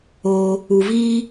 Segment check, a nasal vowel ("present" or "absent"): absent